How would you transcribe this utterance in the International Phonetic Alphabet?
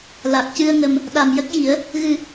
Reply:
l a˨˩ k̚ c ɨ˧ ə̯ ŋ ə˨˩ m | ɗ a˨˩ m j ə˦˥ k̚ j i˨˩˦ ə̯ | ɣ ɨ˨˩

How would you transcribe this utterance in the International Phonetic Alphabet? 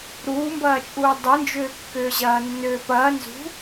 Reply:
ɾ uː m b ɐː t͡ʃʼ uː dˤ ɨ n d͡ʒ ʏː kː ʏː ʑ ɐː nː ʏː p ɐː n z ṳ

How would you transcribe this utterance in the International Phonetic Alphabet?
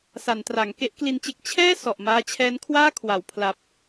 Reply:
s a˩˦ n t r a˩˦ ŋ k e˦˥ ʔ k l i˧ n t͡ɕ e˦˥ k̚ t͡ɕʰ ɛː˥˩ s ɔ˨˩ ʔ m aː˦˥ t͡ɕʰ ɛː˦˥ n kʰ w aː˥˩ kʰ w a˨˩ w pʰ l a˨˩ p̚

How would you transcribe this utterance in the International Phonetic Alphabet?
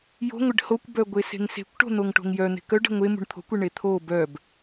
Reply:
j o̤ ŋʷ e ɖ h o kʷ b œ ɡʷ e s e̤ ŋ s e̤ kʷ ʈ o̤ n̪ o ŋ ʈ o̤ ŋ j œ n̪ e̤ k œ ɖ e̤ ŋʷ e m ṳ ɳ t̪ʰ o̤ kʷ e ɳ e t̪ʰ o b œ b

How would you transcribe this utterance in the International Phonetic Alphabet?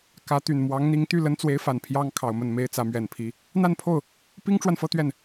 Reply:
k ä˧˥ t̪ y˨˩ n m w ɑ˧˥ ŋ n̪ i˧˥ ŋ t̪ y˥˩ l ə˥ n t͡s w e˧˥ ɪ̯ f a˨˩ n pʰ j ɑ˥ ŋ kʰ ɑ˨˩ ʊ̯ m ə˥˩ n m e˥ ɪ̯ t͡s ä˧˥ m ɥ ɛ˨˩ n pʰ i˧˥ | n̪ a˥˧ n pʰ o˥˩ ʊ̯ | p i˥ ŋ ʈ͡ʂ w a˨ n f ɤ˥˧ t̪ ɥ ɛ˥˩ n

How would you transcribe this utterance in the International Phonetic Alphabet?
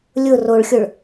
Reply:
lʲ ʊ r o ɭ xʲ ʊ ɭ

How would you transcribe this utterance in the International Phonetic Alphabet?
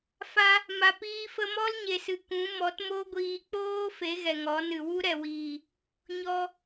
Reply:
f a˧ | m a˧ p iː˦ f ə˦ m ɔ˦ l ɲ e˨ s ɨ˨ k ũ˨˦ m ɔ˨˦ t m o˦ ɡʷ iː˧ k͡p oː˦ f e˨˦ ɣ ɛ˨ ŋ ɔ˨˦ n ɨ˨ w u˦ ɾ ɛ˨ w iː˨ | ɲ ɔ˧

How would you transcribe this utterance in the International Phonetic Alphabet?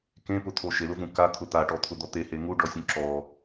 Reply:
k ẽ p ʊ t̪ʰ o ʃ e l ʊ v ũ k a t̪ʰ ʊ t̪ a ʈ ɔ t̪ʰ ʊ d̪ ɔ t̪ e h e ŋ u ɖ ɔ sʲ ũ ǁ ɔ

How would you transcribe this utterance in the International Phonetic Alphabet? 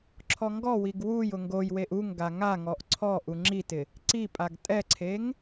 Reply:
ǁʰ ɔ ŋ ɡ ɔ w i ɡ w u j ʊ ŋ ɡ o j w e ʔ u ŋ ɡ a ŋ a ŋ ɔ ʔ ǀʰ ɔ ʔ u ŋ͡ǁ i t ɪ | ǀ i pʼ a ɡ tʼ ɛ ǀʰ e ŋ

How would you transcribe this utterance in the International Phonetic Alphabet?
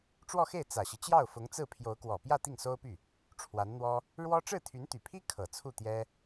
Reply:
ʈ͡ʂ w ɔ˥˧ x e˥˩ ɪ̯ t͡s ä˨˩ ɕ i˦ t͡ɕ j ɑ˥˩ ʊ̯ f ʊ˧˥ ŋ t͡s ɹ̩˥˩ pʰ j o˧˥ ʊ̯ k w ɔ˨˩ p j ä˥˧ t̪ i˥˩ ŋ s o˥ ʊ̯ p y˥˩ | ʈ͡ʂʰ w a˧˥ n n̪ w ɔ˥ | ɻ w ɔ˥ ʈ͡ʂ ɻ̩˥˩ t̪ʰ y˧˥ n t̪ y˨˩ pʰ i˥ kʰ ɤ˨˩ t͡sʰ u˥˩ t̪ j ɛ˥

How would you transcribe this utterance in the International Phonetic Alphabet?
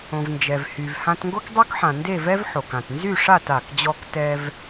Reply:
õ˩ v n d͡ʒ ɛ˩ v h y˩ v h ã˧ t ŋ ɡ o˥ k dˤ y˥ k ħ ã˩ n d e˥˨ v ɛ˥ v ħ o˩ k ã˩ t n z y˥˨ ʂ a˥˨ t a˩ k d͡ʑ ɔ˧ k t ɛ˧ v

